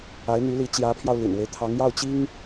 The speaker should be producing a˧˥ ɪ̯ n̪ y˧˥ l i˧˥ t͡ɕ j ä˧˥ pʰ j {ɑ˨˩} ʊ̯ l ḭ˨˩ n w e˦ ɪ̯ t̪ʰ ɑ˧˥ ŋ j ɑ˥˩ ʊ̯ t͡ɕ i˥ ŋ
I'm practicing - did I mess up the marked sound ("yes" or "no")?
yes